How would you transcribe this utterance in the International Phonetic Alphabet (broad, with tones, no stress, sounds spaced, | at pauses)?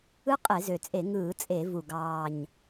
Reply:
ɯ˦˥ qʼ e˧˩˧ z ø˨˩ t͡sʼ e˧˩˧ ŋ ɯː˧˩˧ t͡sʼ e˧˩˧ v u˨˩ ɡ ɑː˨˩ ɲ